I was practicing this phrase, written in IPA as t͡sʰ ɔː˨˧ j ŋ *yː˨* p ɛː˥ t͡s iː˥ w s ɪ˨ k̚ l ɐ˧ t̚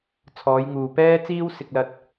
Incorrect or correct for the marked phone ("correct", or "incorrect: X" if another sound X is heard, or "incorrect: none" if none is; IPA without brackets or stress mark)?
incorrect: uː˨